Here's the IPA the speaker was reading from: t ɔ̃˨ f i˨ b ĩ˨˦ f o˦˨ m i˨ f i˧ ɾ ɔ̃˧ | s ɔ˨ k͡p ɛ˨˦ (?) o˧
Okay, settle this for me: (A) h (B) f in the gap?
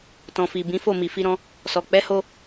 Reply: A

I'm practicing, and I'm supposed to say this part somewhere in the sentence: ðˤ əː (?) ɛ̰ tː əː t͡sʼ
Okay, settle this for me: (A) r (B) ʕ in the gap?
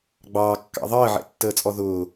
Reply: B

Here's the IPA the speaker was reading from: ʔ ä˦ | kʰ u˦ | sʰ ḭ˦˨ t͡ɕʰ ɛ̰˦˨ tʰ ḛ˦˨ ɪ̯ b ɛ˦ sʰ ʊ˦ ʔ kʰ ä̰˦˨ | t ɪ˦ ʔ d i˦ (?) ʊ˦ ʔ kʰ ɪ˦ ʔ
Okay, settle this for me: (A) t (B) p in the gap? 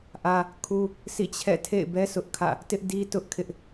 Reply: A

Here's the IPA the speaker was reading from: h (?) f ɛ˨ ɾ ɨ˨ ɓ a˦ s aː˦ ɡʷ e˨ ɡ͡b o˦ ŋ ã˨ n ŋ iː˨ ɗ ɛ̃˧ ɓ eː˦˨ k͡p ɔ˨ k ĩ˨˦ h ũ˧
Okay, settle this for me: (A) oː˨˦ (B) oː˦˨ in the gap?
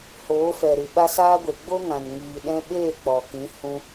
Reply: A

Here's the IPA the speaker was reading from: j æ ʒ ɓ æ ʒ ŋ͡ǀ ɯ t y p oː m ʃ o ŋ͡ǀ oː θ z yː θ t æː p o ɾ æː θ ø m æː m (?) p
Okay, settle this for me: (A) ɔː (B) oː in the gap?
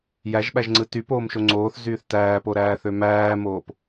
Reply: B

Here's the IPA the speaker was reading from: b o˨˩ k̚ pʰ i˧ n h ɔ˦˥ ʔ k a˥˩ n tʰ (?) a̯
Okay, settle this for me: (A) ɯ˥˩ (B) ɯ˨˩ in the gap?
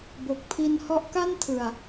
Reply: B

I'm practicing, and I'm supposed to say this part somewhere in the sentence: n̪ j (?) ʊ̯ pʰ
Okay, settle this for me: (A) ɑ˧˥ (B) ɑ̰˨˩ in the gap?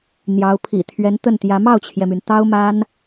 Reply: A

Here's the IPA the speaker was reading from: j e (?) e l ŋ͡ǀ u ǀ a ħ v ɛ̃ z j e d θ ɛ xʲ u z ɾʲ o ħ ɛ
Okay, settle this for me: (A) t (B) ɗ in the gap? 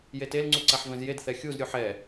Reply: A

